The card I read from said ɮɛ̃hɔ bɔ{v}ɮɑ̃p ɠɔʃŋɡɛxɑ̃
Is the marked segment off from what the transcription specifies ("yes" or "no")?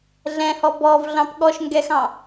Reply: no